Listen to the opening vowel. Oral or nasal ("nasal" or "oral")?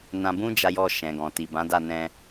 nasal